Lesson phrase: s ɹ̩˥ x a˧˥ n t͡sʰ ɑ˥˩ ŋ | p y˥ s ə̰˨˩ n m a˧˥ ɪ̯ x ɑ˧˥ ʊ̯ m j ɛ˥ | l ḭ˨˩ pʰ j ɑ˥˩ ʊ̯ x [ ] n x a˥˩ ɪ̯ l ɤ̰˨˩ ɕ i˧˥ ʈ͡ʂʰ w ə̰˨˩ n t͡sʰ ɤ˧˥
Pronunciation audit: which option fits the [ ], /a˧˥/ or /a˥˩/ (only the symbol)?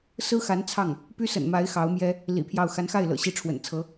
a˧˥